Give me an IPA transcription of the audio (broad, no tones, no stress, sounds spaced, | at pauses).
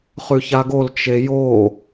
χ ʉ ç a ɡ o l t͡ʃ e j o